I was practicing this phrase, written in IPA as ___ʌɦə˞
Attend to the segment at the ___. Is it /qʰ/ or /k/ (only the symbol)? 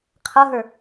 qʰ